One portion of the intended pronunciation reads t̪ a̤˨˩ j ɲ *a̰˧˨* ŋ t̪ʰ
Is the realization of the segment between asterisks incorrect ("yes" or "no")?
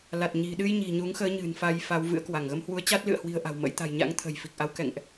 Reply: yes